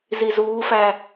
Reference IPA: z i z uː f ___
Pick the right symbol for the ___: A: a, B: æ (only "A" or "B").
B